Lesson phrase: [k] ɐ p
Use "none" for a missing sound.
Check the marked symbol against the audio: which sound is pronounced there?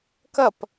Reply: k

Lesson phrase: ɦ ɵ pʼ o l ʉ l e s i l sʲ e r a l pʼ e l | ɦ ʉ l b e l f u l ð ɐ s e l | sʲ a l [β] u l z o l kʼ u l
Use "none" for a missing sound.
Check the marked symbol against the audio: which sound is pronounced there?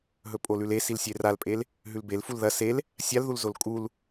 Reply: ð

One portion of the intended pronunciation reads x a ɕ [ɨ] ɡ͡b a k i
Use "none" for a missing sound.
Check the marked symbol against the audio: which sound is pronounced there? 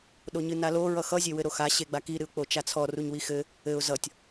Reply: e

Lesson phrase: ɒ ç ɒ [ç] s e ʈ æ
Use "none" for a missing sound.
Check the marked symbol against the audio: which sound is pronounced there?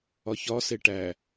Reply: none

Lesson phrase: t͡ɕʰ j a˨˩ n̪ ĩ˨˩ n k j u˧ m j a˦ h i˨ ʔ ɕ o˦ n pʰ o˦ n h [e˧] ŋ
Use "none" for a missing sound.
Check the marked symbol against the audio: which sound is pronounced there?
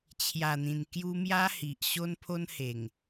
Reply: e˨˩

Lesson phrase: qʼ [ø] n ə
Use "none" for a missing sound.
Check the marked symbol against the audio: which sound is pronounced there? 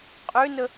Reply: ø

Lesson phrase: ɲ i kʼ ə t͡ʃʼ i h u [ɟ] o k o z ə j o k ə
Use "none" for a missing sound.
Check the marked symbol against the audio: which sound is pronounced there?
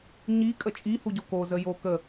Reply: ɟ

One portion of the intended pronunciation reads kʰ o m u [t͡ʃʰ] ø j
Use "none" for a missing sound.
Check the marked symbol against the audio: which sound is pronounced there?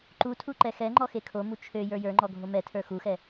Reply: t͡ʃʰ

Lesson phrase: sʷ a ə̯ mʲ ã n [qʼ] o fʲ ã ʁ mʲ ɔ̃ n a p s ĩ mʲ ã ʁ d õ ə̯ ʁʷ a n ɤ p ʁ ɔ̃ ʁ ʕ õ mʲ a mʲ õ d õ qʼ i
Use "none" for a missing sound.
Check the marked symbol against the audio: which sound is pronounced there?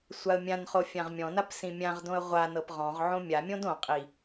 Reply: χ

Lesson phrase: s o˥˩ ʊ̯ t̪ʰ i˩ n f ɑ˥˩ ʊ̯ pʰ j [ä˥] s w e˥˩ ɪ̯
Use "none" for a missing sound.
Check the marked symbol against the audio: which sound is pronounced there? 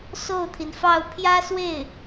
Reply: ä˥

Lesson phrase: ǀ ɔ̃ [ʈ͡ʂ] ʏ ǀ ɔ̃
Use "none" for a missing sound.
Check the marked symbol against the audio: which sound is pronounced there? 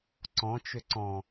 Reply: t͡ʃ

